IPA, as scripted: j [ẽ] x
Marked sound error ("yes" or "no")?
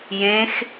no